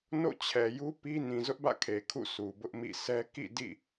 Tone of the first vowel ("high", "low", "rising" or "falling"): falling